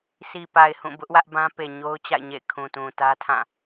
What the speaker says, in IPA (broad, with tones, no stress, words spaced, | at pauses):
si˨pa˨ɪ̯ hũ˦˨bʊ˦ʔwä˦ʔ bã˦ pe˨ɲo˦ʊ̯ t͡ɕa̰˦˨ɪ̯ɲḛ˦˨ɪ̯ kʰũ˨tũ˨ tä˦tʰã˦˨